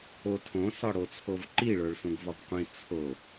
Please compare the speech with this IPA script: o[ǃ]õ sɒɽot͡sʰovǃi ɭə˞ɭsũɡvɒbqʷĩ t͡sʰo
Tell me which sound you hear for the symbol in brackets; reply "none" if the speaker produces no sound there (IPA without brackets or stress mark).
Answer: tʰ